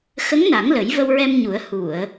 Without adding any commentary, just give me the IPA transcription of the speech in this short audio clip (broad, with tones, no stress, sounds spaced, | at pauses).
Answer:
x ə˧˥ ŋ n a˨˩˦ ŋ l ə˨˩˦ j v ə˧ w ɹ ɛ˧ m ɲ u˨˩˦ ə̯ h u˨˩˨ ə̯